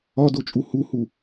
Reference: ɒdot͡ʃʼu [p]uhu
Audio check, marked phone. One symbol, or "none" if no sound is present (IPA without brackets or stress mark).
h